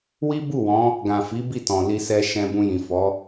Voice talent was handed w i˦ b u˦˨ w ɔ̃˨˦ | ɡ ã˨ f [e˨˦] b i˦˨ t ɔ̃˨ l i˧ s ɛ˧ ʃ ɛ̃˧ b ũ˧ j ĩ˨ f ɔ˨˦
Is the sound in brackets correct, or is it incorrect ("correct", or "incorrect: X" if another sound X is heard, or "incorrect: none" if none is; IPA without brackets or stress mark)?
incorrect: i˨˦